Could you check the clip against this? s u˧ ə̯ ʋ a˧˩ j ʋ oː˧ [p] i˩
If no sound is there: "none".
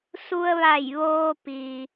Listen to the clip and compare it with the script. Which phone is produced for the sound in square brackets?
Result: p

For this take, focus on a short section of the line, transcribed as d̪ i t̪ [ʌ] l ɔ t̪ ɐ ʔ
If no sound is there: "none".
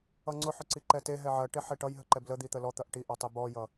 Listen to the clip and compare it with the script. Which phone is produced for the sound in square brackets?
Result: ə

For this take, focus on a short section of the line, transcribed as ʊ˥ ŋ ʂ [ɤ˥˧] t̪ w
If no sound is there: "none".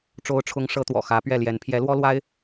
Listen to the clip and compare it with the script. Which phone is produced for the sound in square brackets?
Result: ɤ˥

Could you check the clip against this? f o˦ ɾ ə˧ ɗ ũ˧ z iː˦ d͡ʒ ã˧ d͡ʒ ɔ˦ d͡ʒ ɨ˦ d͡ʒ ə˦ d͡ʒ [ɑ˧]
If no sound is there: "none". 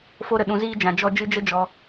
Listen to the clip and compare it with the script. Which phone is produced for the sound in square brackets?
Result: ɔ˧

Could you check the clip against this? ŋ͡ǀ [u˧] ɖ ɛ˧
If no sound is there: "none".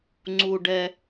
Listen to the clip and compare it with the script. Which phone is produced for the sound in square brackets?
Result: u˧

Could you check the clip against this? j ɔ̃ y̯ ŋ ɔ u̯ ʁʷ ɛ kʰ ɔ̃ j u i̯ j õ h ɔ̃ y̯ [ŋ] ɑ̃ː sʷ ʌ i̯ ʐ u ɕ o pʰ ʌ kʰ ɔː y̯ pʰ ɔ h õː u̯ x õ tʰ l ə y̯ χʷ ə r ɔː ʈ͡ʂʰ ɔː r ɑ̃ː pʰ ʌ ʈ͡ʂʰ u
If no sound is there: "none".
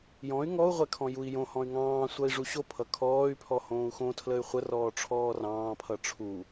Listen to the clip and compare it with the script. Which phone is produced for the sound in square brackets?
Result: ŋ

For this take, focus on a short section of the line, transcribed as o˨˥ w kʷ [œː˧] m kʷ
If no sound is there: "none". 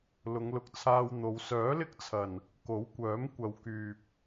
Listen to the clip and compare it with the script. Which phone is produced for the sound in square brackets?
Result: œː˨˥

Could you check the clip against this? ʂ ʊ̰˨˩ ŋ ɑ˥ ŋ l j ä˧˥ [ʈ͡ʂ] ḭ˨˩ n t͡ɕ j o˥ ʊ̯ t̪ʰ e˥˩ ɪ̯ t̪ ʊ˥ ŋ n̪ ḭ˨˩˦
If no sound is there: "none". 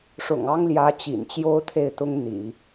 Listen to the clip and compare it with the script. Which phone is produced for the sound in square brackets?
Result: t͡ɕ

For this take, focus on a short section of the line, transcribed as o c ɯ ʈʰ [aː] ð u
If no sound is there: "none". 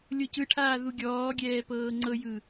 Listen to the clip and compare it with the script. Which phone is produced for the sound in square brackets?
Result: aː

